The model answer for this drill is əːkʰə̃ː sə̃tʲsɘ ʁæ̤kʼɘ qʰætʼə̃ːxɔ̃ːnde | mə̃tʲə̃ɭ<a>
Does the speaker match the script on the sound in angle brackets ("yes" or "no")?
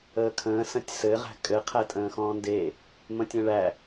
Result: no